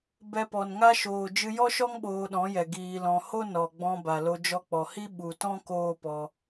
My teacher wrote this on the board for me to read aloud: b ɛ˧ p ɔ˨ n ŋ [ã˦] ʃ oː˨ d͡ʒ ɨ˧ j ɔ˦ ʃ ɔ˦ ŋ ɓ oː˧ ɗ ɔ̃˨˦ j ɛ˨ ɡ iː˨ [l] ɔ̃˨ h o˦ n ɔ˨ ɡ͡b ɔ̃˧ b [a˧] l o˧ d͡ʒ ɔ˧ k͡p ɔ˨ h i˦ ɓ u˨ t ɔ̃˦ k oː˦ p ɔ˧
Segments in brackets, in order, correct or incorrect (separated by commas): incorrect, correct, incorrect